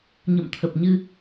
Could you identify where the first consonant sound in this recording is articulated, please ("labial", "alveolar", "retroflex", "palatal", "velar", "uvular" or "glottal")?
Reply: palatal